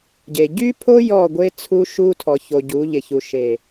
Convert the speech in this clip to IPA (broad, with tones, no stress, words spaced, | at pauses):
ɟe˨ ɟy˦pʰo˦ jɔ˦˨ɡʷe˦t͡sʰu˦ ʃu˦tʰɔ˨ ço˨ ɟu˨˦ ʎɪ˨çu˨ ʃe˨